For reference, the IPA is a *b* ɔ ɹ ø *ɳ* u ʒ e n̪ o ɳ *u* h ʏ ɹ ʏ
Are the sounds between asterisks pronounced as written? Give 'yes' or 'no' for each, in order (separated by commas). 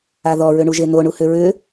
no, yes, yes